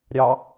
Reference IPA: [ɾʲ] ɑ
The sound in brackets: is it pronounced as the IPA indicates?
yes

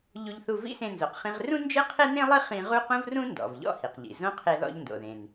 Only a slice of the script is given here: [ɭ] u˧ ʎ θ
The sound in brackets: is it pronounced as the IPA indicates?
no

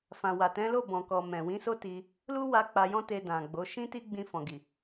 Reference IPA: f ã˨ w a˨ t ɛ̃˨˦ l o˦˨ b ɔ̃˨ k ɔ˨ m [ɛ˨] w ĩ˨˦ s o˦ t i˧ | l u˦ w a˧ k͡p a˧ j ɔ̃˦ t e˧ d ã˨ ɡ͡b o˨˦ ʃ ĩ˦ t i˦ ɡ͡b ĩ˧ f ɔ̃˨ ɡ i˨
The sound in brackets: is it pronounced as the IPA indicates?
no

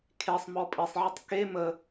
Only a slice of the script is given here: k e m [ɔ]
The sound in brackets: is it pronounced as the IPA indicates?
no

